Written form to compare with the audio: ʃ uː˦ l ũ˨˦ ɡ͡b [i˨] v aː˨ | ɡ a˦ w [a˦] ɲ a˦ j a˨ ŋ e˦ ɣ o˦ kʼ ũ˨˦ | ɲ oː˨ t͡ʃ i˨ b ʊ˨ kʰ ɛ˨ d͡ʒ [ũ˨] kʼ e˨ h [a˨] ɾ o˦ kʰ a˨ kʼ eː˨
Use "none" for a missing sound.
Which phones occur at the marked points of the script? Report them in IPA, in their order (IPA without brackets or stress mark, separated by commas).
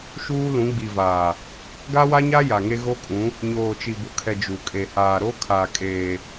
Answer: i˨, a˦, u˨, aː˨